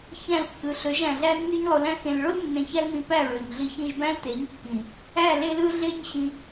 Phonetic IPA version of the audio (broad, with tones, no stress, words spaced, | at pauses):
çæ̃˦˨lkːɯ˨ɬø˨˦ʒæ̃˨ ɮæ˦nːy˦ɲlˠo˧læ̃˦ xẽ˨lɭo˦l nːẽ˧çæ˦lmĩ˧ pæ˦˨ɹø˨ɲɮi˧ çĩ˧ʒbæ̃˦lte˨˦ɲkːĩ˨ | æ˦˨ le˦lɯ˦ɮe˦ɲɕĩ˧